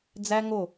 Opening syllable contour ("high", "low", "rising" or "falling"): high